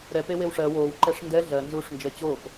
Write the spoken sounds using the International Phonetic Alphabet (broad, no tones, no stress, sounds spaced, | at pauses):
ɾ ɛ p e w e w ʂ ɜ w oː w ǃ ɛ ʂ n d ɛ ɮ ɜ n z uː ʂ n d͡ʒ ɜ t͡ɕ oː p